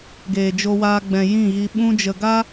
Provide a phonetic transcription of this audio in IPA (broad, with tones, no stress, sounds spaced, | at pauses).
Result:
ɡ eː˨ d͡ʒ o˧ w aː˧ ɡ͡b ɛ̃˨ j ĩ˦˨ ɣ i˧ ɓ ũ˧ d͡ʒ ə˨ ɡ a˦